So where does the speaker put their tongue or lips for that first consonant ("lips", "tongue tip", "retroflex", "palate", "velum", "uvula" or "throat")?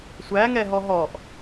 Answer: tongue tip